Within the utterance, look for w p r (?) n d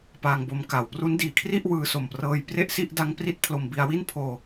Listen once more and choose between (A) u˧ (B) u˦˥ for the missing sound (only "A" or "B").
B